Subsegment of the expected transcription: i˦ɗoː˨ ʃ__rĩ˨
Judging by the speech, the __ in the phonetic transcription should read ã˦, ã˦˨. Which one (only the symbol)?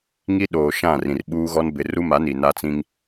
ã˦˨